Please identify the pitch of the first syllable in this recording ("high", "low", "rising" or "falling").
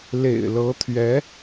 low